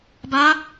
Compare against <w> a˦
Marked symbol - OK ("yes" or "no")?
no